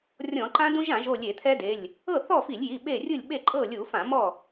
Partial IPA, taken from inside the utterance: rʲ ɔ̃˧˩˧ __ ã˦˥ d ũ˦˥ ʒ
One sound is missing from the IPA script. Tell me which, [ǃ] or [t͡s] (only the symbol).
ǃ